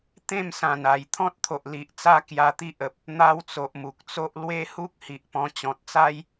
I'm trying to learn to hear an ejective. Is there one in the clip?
no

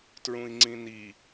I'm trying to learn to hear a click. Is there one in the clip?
yes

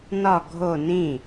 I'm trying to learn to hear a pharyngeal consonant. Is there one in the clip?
no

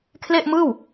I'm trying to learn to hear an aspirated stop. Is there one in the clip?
yes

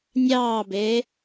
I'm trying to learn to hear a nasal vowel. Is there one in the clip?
no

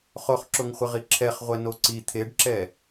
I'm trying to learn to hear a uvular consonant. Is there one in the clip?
yes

